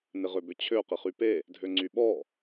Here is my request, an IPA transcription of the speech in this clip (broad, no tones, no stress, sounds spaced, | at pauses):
n ɪ ʁ ø b ʏ t͡ɕʰ ø q ɪ χ y p e | dʱ ø ŋ͡ǀ y ɓ ɔ